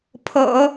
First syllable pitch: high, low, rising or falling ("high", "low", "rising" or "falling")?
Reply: low